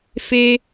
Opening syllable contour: high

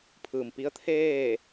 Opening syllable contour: low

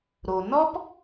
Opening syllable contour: low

